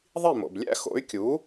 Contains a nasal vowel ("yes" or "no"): no